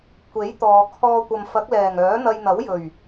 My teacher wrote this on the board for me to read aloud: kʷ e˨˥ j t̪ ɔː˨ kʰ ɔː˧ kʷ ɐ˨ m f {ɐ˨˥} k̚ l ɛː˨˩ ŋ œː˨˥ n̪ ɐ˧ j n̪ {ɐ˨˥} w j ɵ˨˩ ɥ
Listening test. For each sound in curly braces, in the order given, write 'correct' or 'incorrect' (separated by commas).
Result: correct, correct